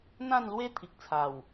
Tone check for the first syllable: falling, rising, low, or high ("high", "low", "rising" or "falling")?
falling